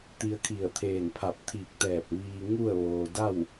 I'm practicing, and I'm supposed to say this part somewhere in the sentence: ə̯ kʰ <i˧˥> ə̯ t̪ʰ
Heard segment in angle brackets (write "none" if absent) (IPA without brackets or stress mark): i˧˩